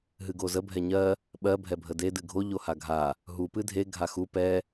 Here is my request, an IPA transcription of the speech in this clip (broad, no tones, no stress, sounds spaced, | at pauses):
ɦ ɨ ɡ o z ə bʱ ɛ ɲ ɜ | ɓ ɜ bʱ ɛ bʱ ə d e d ɨ ɡʱ o ʎ o h a ɡʱ a | ɦ u p ɨ dʱ e ɡʱ a x u p ɛ